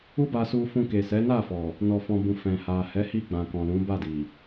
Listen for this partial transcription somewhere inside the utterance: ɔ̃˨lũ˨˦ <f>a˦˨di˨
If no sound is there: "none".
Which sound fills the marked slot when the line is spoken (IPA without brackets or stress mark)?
b